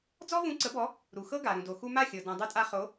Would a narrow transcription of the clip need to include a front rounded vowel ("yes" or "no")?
no